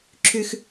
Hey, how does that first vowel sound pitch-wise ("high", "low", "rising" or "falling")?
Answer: high